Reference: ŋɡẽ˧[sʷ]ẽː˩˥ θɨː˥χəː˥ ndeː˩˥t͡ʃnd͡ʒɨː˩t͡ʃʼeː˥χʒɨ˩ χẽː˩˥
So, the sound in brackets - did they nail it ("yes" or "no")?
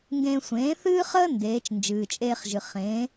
yes